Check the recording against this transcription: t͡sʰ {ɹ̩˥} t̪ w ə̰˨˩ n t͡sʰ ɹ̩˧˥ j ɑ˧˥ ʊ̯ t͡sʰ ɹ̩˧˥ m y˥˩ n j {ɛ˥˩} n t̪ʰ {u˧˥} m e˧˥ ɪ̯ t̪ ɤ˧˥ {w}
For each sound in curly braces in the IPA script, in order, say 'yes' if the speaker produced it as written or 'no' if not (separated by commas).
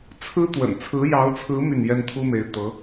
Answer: yes, no, no, no